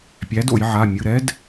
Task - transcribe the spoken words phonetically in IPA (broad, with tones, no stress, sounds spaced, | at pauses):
pʲ æ˨˥ d o̰˧˩˧ j ʕ a˩˧˩ mʲ ɯ˩˧˩ ɾ ɛ˦˥ d